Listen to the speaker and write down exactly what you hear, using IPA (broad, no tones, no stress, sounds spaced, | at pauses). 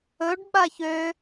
ɵ ɖ ɓ a ç ø